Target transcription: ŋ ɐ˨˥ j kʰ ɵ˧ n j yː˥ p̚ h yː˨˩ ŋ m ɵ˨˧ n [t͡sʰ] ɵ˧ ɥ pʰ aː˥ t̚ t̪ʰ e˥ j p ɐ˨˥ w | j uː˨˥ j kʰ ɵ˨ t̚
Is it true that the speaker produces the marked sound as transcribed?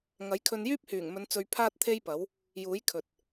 no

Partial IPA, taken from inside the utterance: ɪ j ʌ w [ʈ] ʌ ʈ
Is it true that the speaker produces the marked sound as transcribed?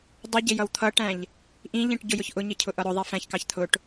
no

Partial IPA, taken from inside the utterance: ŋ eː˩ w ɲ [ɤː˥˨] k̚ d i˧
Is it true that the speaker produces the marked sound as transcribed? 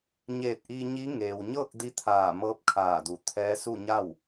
yes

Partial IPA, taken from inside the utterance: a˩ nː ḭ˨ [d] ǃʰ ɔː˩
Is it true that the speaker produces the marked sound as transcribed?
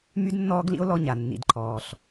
yes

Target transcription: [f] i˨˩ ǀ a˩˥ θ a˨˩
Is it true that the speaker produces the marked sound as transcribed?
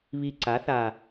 no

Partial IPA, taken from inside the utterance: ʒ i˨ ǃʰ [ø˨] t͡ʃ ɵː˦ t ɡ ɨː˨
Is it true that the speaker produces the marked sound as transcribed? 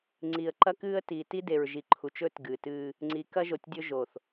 no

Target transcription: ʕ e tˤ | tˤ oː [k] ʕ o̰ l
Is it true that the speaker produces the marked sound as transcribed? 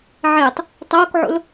yes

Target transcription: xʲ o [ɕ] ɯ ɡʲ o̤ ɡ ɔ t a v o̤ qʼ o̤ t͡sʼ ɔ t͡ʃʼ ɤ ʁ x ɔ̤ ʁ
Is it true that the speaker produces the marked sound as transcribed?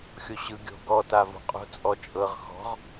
yes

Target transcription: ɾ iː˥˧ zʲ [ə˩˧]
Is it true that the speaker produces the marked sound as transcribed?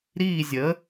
no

